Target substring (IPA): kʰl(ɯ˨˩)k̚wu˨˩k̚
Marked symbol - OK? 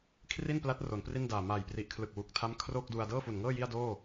yes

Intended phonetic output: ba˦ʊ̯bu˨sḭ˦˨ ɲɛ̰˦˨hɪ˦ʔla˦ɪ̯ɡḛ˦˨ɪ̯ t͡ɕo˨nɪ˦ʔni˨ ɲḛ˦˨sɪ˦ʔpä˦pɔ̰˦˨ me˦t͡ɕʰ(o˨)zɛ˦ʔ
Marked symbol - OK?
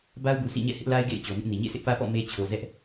yes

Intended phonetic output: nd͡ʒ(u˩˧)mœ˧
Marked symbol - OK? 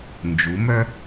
yes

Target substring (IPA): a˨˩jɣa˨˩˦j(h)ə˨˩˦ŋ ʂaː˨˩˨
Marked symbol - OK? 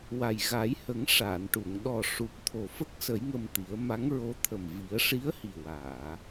yes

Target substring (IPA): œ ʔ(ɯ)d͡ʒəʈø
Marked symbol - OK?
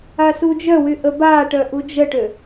no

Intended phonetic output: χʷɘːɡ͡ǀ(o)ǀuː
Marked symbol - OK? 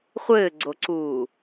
yes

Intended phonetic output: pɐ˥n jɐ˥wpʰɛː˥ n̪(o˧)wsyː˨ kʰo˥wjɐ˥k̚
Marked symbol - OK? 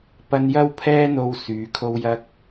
yes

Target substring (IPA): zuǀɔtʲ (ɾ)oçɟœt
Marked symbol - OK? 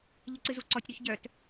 yes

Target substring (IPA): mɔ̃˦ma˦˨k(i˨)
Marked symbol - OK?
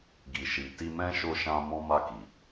yes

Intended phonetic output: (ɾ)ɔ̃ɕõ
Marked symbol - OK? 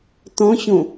no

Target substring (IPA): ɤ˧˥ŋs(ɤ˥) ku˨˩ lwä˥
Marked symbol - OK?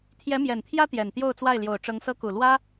yes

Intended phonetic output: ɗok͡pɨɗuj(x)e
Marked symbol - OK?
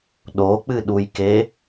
no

